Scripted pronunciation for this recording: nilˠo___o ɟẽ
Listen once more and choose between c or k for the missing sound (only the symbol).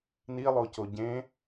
c